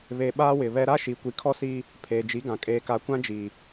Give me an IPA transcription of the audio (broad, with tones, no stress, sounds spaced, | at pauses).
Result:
β e˨ ɓ aː˦ w ɪ˨ β ɛ˦ ɾ a˦ ʃ i˨ kʷ i˨˦ kʰ ɔ˦ s iː˦ | pʰ eː˨ d͡ʒ i˨˦ ɡ ã˨ kʼ eː˨ k a˨ kʷ ã˦ d͡ʒ iː˨